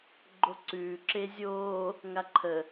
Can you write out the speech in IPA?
ɡ͡ǃ o ǀ ʉː ǁ e zʲ oː | ŋ a ǃʰ ə

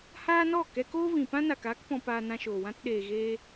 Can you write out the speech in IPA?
h aː˦ n ɔ˦˨ k ɛ˧ k oː˦ v ĩ˨ p ã˦ n a˨ k aː˦ k p ɔ̃˧ p aː˧ n ã˧ ʃ oː˨ w ã˧ t ɗ eː˨ ɣ eː˧

